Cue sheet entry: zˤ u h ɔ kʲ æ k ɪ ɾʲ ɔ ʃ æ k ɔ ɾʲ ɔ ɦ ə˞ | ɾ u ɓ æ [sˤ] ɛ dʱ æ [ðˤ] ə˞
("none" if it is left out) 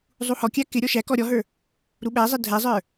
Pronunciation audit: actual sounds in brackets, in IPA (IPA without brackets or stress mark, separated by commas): zˤ, zˤ